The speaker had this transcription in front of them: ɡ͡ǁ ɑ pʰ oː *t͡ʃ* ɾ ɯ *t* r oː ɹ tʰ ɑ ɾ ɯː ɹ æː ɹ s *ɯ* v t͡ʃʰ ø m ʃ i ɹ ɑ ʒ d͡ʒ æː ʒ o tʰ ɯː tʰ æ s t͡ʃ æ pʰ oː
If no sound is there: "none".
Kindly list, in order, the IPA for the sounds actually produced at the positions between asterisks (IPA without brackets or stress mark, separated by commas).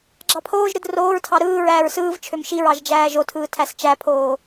ʒ, d, ɯː